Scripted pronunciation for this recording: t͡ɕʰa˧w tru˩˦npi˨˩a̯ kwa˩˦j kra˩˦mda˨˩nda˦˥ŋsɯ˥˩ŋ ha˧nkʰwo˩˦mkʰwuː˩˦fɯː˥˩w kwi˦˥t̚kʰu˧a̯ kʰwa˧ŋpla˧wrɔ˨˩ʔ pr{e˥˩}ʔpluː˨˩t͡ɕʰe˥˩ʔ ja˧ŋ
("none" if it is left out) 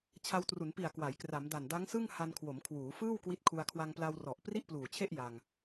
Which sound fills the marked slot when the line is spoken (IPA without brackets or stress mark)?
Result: i˥˩